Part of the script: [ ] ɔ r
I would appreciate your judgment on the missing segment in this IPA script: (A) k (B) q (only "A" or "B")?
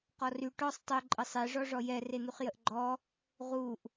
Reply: B